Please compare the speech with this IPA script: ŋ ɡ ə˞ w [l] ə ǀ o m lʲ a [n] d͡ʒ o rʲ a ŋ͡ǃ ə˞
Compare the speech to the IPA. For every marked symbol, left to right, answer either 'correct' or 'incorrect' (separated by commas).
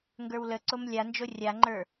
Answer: correct, correct